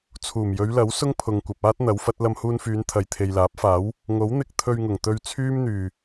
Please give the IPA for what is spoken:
t͡sʰuː˨˩mjɵ˨˧ɥlɐ˨˥w sʊ˥ŋpʰʊ˨ŋkʷɐ˨p̚aː˥t̚ n̪ɐ˨˥wfɐ˨˥t̚ lɐ˧mhuː˧nfyː˨˧n t̪ʰɐ˨jt̪ʰe˨jlaː˨˥p̚faː˨˥w | ŋo˨˥w n̪ɪ˧k̚ t̪ʰɵ˧ɥŋʊ˨˩ŋ t̪ɵ˧ɥt͡sʰyː˥mn̪yː˨˩

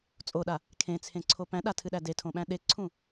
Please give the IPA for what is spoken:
t͡sʼoɗa | kʰẽt͡sʰẽǀʰo pæ̃ɗatʰɨɗæ detʰõɓæ̃ ɗeǀʰũ

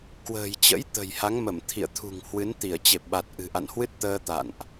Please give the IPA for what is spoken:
kwə̤ː˨˩jt͡ɕə̰˧˥j t̪ə̤˨˩jha˨˦ŋmə˧˩m t̪ʰḭ˧˨ə̯t̪ʰṳ˨˩ŋhwɨ˨˦n t̪i˧˩ə̯ t͡ɕe˨˩p̚ɓa˨˩t̚ ʔɨ̤˨˩ʔa̰˧˨nhwɨ˦˥t̚t̪əː˧ t̪a̰˧˨nʔ

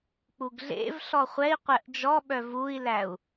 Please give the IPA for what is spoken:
k͡puɡɮḛvɬɔ χʷɛi̯qʷɛʔ d͡ʒɔ ɓœvui̯læu̯

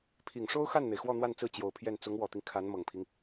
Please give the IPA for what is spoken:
pʰi˨˩ŋʂo˥ʊ̯xa˥˩nn̪e˩ɪ̯ xwɔ˥˧n̪wa˥˧nt͡sɹ̩˥˩ t͡ɕjo˨˩ʊ̯pʰjɛ˥˩n t͡sʊ˧˥ŋwɔ˨˩t̪i˦ŋ kʰa˧˥nmɤ˨˩ŋpʰi˦ŋ

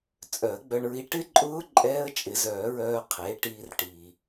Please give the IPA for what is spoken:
t͡sʼœ˨˩˦ə̯ɡ͡bœ˧ɳɹi˧ ʈɪ˦˥ǃʼʊː˦˥ ǃʼɛː˦˥ə̯t͡ʃʼɪ˨˩˦zœː˨˩˦ɹœː˧ qʰe˩˥ʈiː˧rʈi˩

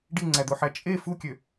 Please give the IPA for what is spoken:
ɖiŋ͡ǀæd̪oħæ t͡ʃʼe fukʲø

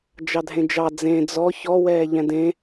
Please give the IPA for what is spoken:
d͡ʒɑdʱẽd͡ʒɑ d͡zẽ d͡zɔ çɔwɛː ʎɛ̃dẽ

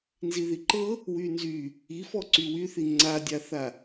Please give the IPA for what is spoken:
nziðiǃɤ | wynzy | ifɔ ǀywyθi ŋ͡ǀadʲaθa

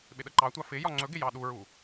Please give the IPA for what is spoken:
ɓɪɗəǃɑtʷɑ fɪ jɒŋ͡ǀɵɡɪ jɑɗuɹu

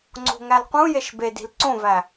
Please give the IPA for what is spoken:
ŋ͡ǀo̤ŋælqũjeʃ bedi̤l ǀõvæ

